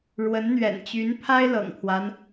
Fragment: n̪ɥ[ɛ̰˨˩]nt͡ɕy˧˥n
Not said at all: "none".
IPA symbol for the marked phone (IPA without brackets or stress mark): ɛ̰˨˩